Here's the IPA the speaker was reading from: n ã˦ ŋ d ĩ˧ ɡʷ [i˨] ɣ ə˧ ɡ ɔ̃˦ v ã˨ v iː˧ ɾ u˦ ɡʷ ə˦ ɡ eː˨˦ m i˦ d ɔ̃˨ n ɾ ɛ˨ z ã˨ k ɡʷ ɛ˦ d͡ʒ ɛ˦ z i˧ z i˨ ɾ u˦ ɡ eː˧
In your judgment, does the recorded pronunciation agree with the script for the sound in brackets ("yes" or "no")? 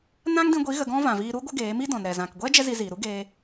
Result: no